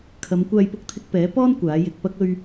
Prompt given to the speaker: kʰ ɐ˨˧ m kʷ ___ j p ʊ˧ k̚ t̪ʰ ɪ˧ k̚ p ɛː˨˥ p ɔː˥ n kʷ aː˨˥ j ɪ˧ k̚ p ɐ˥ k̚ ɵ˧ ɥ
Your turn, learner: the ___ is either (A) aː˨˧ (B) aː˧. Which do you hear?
B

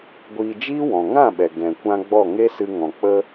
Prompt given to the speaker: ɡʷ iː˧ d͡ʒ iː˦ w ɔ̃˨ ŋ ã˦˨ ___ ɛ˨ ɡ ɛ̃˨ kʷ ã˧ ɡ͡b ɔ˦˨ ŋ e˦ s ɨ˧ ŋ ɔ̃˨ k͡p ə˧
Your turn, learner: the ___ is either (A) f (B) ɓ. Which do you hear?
B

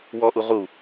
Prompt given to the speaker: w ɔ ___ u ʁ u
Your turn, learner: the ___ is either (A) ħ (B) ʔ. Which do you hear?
B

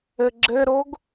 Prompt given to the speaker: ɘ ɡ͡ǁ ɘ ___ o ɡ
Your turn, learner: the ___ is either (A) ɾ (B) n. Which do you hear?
A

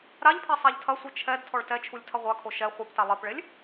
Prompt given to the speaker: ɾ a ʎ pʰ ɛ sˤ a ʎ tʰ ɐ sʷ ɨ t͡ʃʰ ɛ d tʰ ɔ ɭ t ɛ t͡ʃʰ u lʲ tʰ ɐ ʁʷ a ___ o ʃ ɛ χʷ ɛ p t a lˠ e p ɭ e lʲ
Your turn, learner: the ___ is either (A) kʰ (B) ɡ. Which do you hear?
A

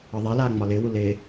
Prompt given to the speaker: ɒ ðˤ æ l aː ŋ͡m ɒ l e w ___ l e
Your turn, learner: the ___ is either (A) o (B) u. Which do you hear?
B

